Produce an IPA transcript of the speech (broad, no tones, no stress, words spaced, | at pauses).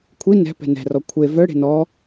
kʷʰi nɛ̤ pɛ̤nɛ̤rɔ kʷʰe vœɽe̤ nɔ